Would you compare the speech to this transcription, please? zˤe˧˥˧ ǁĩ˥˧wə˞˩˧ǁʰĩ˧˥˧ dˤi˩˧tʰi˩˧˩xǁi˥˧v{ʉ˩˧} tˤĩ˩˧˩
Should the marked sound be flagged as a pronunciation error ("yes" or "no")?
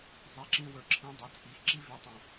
no